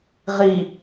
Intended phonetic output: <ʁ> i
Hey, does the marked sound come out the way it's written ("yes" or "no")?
yes